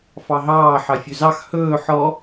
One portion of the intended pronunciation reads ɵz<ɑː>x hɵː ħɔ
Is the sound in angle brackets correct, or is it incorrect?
incorrect